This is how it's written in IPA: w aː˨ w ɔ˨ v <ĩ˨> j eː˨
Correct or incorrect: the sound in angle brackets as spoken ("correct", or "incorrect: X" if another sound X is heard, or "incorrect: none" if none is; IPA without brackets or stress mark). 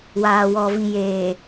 correct